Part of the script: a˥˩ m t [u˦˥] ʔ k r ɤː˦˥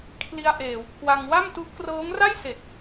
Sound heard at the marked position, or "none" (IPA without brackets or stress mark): u˦˥